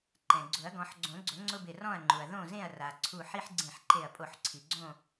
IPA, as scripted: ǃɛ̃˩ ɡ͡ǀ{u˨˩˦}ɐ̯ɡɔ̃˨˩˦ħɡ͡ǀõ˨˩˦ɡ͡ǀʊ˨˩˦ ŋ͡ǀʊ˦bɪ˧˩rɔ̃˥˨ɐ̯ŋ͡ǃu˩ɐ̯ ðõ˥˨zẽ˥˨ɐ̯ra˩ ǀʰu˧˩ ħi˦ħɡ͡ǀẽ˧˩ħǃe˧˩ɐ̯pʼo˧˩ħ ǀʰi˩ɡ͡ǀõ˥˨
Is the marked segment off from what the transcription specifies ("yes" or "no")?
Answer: yes